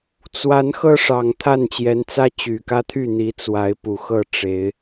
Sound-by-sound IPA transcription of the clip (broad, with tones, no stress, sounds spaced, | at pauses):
t͡s w a˨˦ n x ɤ˧ ʂ ɑ˨˩ ŋ t̪ʰ a˥˨ n t͡ɕ j ɛ˨˦ n t͡s ä˦ t͡ɕ y˨˩ k ä˦ t̪ʰ y˥˨ n̪ i˨˦ t͡s w a˨˦ ɪ̯ p u˨˩ x ɤ˥˨ ʈ͡ʂ e˨˦ ɪ̯